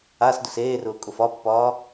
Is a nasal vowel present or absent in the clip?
absent